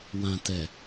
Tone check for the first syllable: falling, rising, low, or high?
low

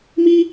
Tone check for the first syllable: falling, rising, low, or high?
high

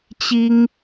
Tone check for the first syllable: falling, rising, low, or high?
high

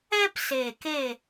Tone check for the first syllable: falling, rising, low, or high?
high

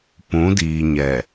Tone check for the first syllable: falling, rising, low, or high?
rising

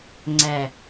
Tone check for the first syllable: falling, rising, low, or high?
low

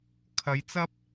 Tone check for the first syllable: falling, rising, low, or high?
rising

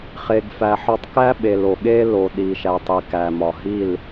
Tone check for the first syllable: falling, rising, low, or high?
low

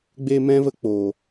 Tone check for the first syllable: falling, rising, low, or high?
high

